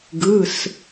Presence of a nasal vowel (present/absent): absent